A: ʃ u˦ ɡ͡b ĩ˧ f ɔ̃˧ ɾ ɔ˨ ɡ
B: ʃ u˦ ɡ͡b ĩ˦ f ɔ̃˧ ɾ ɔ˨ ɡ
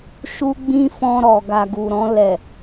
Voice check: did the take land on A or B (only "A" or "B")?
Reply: B